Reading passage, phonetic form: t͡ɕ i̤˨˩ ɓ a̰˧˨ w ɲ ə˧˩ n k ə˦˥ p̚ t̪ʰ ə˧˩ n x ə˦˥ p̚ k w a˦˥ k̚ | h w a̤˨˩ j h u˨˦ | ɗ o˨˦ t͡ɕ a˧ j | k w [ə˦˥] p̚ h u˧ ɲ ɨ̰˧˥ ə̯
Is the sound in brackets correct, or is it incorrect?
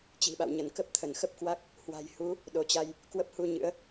correct